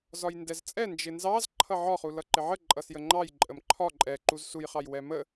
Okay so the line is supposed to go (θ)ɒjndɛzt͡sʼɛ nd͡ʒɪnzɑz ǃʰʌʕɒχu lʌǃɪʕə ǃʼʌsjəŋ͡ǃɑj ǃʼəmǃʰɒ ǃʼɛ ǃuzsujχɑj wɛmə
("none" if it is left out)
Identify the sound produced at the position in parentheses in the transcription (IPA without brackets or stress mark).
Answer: z